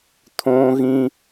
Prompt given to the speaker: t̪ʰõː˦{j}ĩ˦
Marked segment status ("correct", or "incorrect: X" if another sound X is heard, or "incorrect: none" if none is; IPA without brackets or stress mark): incorrect: ɣ